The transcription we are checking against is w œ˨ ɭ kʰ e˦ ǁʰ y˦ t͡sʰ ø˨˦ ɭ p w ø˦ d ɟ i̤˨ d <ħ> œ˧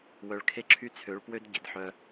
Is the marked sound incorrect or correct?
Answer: correct